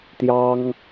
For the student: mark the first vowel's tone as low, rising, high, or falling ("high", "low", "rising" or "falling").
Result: high